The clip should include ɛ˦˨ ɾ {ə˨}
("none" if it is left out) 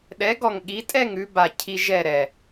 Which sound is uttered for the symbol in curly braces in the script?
ɛ˨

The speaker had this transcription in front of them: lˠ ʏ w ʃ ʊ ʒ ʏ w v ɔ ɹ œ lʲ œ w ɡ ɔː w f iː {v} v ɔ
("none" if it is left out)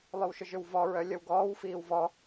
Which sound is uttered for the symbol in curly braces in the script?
w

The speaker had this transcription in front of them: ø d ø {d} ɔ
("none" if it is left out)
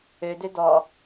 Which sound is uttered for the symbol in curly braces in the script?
d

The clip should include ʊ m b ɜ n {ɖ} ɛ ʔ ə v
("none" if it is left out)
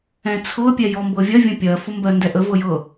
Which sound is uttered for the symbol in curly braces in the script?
d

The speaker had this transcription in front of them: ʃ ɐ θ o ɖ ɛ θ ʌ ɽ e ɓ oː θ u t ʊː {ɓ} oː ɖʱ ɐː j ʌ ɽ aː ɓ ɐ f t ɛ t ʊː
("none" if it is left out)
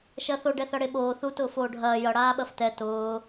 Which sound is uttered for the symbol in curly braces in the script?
f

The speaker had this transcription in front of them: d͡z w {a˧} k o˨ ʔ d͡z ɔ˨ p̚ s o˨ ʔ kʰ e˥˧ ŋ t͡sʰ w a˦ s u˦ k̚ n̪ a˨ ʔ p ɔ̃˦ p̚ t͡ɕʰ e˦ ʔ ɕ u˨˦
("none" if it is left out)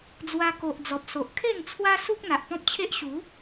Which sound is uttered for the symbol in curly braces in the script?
a˧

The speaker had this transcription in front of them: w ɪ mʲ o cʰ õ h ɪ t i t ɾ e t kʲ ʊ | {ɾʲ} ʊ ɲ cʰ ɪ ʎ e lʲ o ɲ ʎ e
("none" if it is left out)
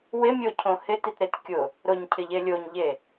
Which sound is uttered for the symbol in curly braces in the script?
ɾ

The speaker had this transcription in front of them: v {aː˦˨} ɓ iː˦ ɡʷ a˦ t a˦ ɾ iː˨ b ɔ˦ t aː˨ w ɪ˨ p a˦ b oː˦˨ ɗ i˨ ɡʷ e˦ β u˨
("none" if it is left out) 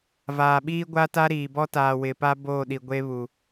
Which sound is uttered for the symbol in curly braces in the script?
aː˨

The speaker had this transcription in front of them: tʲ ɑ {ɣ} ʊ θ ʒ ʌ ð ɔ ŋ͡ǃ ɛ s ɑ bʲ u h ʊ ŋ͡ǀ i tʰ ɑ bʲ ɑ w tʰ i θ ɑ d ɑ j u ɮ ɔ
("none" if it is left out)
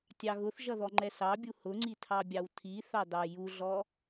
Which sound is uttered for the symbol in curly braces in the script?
ɣ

